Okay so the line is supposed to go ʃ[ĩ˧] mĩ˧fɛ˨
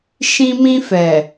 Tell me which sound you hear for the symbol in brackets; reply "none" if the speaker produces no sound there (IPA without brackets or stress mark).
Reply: ĩ˧